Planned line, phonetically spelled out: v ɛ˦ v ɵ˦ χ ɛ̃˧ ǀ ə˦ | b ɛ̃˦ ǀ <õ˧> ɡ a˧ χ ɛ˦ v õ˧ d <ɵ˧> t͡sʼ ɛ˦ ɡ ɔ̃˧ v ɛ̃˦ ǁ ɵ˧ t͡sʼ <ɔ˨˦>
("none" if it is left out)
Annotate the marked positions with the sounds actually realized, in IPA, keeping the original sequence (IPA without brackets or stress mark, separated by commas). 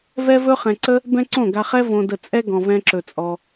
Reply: õ˦˨, ə˧, ɔ˧